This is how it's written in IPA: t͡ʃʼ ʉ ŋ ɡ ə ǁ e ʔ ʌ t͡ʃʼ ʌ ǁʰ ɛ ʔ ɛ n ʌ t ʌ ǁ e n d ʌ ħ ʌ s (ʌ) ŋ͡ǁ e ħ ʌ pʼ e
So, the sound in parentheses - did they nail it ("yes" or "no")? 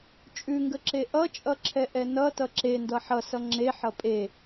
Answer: yes